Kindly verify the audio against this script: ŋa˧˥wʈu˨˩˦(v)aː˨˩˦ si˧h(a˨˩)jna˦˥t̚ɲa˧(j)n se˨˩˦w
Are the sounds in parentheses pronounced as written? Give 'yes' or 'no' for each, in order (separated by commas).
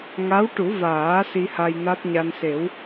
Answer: yes, no, no